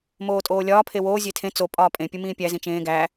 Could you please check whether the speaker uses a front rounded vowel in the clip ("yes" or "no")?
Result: no